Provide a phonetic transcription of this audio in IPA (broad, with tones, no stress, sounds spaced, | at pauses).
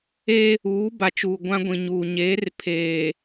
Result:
e˦ | uː˨˦ b a˨ t͡ʃ uː˨ ɡʷ ã˦ ɡʷ ĩ˨ ɲ uː˨ ɲ eː˨˦ r pʰ eː˨